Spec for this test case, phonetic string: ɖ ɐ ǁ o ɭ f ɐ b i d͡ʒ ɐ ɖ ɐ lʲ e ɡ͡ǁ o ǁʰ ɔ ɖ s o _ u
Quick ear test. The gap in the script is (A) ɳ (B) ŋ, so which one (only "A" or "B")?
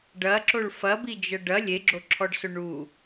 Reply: A